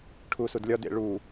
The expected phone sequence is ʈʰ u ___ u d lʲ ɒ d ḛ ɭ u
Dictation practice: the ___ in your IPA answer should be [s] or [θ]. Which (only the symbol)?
s